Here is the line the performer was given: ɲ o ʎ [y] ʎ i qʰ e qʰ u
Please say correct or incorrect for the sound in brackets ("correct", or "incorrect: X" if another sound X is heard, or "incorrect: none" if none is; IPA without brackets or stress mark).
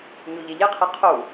incorrect: e